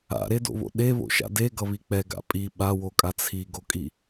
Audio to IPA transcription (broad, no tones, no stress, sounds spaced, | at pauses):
a̰ ɾ e d o̰ β o̰ ɗ e β o̰ ʃ a̰ d e ɡ ʌ β i k͡p ɛ ɡ a̰ pʼ i ɓ a w o kʼ a t͡sʰ i ɡ o kʼ i